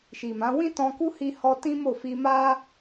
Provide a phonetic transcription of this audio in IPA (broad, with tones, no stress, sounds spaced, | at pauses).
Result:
ʃ i˨ m ã˨˦ w ĩ˦ t ɔ̃˧ k u˦ h i˧ h ɔ˧ t ĩ˦ m o˦˨ f i˧ m a˦